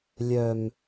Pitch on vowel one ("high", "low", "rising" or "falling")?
low